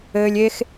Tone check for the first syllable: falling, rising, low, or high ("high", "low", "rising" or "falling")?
low